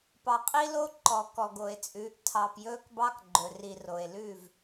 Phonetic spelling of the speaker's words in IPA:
p ɑ˨ qʼ i˦ l o˦ ǃ ɔ˨ k ɔ˨ ɡ o˨ e̯ t͡sʼ ʉː˨˦ ʔ tʰ ɑ˨ p j ɵː˦ k b ɑ˦ k ɡ͡ǃ ɵ˨ r i˨ r o˨ e̯ l ʉ˦˨ v

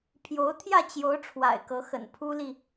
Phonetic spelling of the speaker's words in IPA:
pʰ j o˧˥ ʊ̯ t̪ʰ j ä˥˩ t͡ɕ j o˧˥ ʊ̯ ʈ͡ʂʰ w a̰˨˩ ɪ̯ k ɤ˧˥ x ə̰˨˩ n pʰ u˥ l i˨

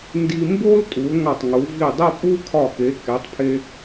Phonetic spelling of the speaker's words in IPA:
n d i˧ m b o˥ l tʼ u˩˧ l ŋ ɒ˧˩ tˤ ŋ u˩˧ v i˧˩ dˤ e˥˧ pʼ u˥ kʰ ɒ˧˩ k e˩˧ k e˩˧ tˤ pʰ e˧

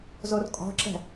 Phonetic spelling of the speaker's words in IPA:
z o r kʼ ɔ̤ ǁ ɛ̤

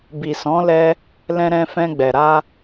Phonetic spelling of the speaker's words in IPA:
b i˨ s ɔ̃˨˦ l ɛ˧ | l ɛ̃˧ ɾ ɛ̃˧ f ɛ̃˧ ɡ͡b ɛ˨ ɾ a˧

